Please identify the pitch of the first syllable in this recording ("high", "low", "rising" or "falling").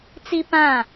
high